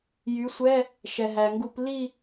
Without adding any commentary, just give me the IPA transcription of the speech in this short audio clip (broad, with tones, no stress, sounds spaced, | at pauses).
j y˩˥ sʷ ɛ˧˥˧ | ʃ ɛ˩ ɦ æ˩ ŋ ɡ u˧˩˧ p l i˥˨